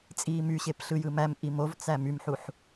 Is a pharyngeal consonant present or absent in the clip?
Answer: present